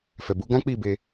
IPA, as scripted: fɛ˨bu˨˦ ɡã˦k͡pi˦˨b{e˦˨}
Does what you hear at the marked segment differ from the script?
yes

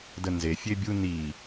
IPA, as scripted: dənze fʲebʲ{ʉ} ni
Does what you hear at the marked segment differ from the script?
yes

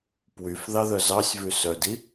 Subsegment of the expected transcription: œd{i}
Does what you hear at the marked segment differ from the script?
no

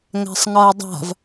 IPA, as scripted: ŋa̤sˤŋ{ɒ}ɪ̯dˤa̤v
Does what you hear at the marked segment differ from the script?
no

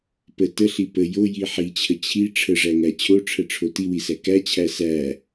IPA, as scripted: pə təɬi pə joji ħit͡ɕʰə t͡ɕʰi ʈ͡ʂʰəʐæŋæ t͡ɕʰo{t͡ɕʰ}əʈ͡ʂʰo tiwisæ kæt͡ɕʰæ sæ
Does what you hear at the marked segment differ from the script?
yes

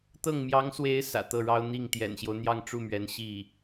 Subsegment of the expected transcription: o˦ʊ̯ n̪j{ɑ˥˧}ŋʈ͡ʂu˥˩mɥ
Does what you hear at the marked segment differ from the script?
no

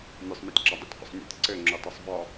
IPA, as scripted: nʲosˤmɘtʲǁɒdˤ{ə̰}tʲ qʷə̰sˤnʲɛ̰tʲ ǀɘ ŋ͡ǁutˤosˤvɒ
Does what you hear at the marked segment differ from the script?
no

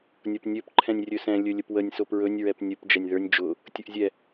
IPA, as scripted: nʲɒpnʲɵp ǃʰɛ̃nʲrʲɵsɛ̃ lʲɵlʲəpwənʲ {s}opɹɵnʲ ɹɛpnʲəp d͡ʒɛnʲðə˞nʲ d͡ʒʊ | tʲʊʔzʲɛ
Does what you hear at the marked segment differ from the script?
no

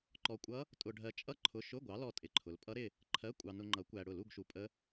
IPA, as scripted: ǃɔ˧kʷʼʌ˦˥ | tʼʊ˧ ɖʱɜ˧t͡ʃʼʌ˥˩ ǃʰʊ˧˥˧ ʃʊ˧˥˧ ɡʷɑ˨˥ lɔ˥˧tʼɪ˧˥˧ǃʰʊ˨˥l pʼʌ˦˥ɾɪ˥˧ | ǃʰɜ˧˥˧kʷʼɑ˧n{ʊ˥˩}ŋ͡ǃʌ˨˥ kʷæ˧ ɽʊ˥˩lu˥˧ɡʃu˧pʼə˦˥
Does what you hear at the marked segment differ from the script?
yes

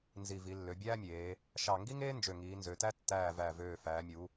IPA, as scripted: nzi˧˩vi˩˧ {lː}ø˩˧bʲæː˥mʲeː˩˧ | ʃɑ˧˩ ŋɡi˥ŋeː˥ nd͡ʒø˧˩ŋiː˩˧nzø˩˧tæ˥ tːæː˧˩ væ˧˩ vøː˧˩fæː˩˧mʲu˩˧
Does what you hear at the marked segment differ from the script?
no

